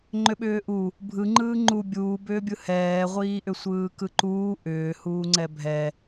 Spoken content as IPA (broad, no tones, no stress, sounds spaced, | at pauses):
ŋ͡ǃ ʏ ɓ ʏː ʔ u | bʱ ɯ ŋ͡ǃ ɯː ŋ͡ǃ u bʲ uː b ʏː bʲ ɯ h ɛː ʁʷ iː ʔ ʏ sʷ ɯː k ɯ ǃ uː ʔ ʏː h uː ŋ͡ǀ ɛ bʱ ɛ